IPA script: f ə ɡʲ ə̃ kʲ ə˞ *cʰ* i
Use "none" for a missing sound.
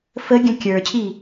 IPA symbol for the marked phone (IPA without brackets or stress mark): cʰ